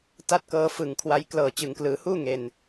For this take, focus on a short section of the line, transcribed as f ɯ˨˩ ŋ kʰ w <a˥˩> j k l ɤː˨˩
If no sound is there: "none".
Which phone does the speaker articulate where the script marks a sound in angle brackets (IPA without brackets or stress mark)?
a˦˥